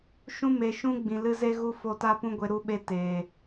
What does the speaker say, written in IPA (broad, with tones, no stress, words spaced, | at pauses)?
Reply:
ʃũ˧me˨ʃũ˧ ɡ͡bĩ˨lɨ˧ze˦ɣu˦ fo˧ta˦pũ˦ɡʷe˧ ɾu˧ɓe˧teː˨